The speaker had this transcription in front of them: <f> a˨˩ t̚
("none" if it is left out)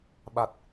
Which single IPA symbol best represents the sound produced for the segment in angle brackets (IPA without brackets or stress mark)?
ɓ